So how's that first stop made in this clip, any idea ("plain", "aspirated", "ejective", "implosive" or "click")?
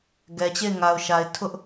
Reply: plain